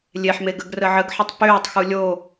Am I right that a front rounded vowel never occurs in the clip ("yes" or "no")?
no